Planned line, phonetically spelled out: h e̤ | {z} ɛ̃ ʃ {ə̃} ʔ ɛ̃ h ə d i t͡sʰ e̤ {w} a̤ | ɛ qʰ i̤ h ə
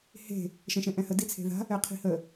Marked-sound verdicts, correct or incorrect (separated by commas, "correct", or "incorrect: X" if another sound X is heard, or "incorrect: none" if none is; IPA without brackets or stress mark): incorrect: ʃ, incorrect: ɛ̃, incorrect: ð